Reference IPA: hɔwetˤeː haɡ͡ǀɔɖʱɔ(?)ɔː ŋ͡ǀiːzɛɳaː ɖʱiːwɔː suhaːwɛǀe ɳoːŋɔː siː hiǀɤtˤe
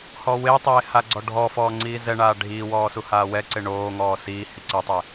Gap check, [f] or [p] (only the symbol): f